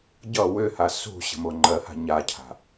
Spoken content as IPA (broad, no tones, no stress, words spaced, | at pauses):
ɟʌ wʏha sṳɕə̤mo ŋ͡ǃɜha̤ ɲacʰa̤